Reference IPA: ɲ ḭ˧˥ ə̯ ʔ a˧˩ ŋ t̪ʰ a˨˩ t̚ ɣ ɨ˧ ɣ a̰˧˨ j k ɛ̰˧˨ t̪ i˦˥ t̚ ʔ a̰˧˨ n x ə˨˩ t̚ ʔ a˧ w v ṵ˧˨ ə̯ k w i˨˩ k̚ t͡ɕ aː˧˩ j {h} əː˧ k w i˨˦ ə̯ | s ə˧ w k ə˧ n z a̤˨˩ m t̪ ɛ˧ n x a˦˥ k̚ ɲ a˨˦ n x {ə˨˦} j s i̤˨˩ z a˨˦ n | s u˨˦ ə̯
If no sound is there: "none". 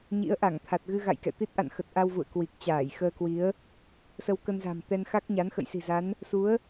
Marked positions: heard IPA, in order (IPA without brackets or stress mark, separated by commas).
x, ə̰˧˨